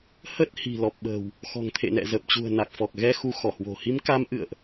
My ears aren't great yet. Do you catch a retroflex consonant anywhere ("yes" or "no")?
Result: no